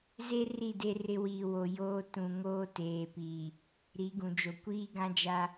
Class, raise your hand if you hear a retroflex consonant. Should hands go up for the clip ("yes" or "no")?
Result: no